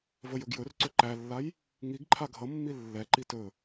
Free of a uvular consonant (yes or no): yes